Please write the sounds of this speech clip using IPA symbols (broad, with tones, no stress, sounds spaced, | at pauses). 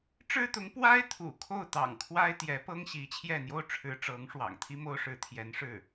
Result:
ʈ͡ʂ ɻ̩˥ t̪ ʊ˧˥ ŋ p w a˥ ɪ̯ t̪ʰ ṵ˨˩ kʰ o˥˩ ʊ̯ t̪ ɑ̰˨˩ ŋ kʰ w a˥ ɪ̯ t̪ j ɛ˧˥ p ɤ˥ ŋ ɕ i˧˥ t͡ɕʰ j ɛ˥˩ n̪ j o˥ ʊ̯ ʈ͡ʂʰ ɻ̩˧˥ ʈ͡ʂ ɤ˧˥ ŋ ʂ w ɑ̰˨˩ ŋ t̪ʰ i˥ m o˥ ʊ̯ ʂ ɻ̩˧˥ t̪ʰ j ɛ˧˥ n ʂ ɻ̩˥˩